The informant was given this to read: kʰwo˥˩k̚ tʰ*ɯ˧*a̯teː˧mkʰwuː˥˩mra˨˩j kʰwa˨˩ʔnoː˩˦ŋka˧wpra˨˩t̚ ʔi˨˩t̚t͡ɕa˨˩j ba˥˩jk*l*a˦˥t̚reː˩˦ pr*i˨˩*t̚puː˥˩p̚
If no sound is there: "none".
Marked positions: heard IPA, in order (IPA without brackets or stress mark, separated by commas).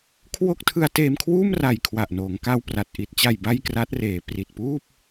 ɯ˧, r, i˨˩